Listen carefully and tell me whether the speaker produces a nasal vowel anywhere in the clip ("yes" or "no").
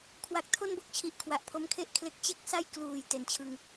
no